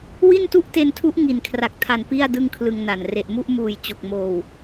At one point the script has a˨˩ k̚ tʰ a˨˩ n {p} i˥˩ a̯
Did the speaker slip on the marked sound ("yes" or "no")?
no